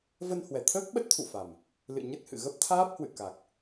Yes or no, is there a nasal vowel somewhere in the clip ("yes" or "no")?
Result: no